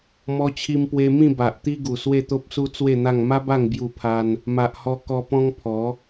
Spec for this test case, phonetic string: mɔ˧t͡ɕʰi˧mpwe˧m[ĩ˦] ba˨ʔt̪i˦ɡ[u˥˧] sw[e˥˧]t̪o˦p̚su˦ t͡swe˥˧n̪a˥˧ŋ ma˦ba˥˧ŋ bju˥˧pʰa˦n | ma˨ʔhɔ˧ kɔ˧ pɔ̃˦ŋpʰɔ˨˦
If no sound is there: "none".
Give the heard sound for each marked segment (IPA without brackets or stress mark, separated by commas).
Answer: ĩ˥˧, u˨˩, e˥˧